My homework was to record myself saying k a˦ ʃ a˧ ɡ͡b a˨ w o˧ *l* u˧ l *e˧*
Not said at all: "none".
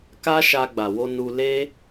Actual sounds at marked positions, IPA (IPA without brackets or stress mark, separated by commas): n, e˦